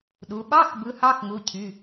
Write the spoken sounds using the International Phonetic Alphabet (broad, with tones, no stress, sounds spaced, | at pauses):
ɗ u˩˧ ɓ ɑ˧˥˧ x b ɯ˨˥ h ɑ˧˥˧ x ŋ u˩˧˩ cʰ y˩˧˩